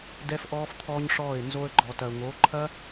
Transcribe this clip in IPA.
d ɛ˦ f ʔ ɔː˦ f t̪ʰ ɔː˦ ɲ ʂ ɔː˦˨ ɪ̯ n z o˧ ə̯ ɡ͡ǃ ɔ˨ t ɐ˨ ʊ̯ ŋ o˨˦ ǃʰ ɐ˦

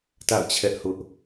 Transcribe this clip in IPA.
t a̰˦˨ ʊ̯ t͡ɕʰ ɛ˦ ʔ h ʊ˦ ʔ

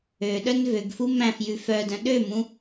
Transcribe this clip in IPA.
ø ɗ œ n v ø ɡ f u m æ̃ f j ʉ f œ d œ̃ ɗ ø m ũ

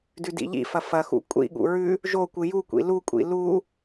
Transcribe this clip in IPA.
d ʉ d ḭ ʎ ḭ f ɐ f ɐ x ṵ kʷʼ ḭ ɠ ṵ ɹ ʉ | ʒ o kʷ ɨ j u kʷ ḭ l u kʷʼ ḭ l u

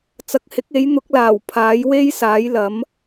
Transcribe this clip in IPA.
t͡s ɐ˨˥ k̚ h ɪ˨˥ k̚ e˨˥ j n̪ ʊ˨˥ k̚ l aː˨˩ w pʰ aː˨˥ j w e˥ j s aː˨˥ j l ɐ˨˥ m

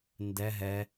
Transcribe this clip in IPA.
n d ɛ ɦ ɛ

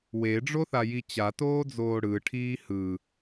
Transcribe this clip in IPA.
w e ɖ͡ʐ o θ a j i t͡ɕ a t oː d͡z oː ɽ ɯ ʈʰ iː h ɯ

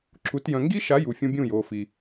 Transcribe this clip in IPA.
ǁ u˨˦ t j œ̃˨ ŋ ɡ i˦ ʃ a˨˦ j u˨ fʲ ũ˧ bʲ ũ˦˨ j oː˨ f i˨

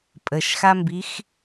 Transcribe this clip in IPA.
pʼ ə ʃ x a m b i x

